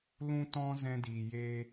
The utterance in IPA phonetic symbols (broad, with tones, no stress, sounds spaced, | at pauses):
l ũ˦ t ɔ̃˦ z ɛ̃˧ d iː˨ j eː˧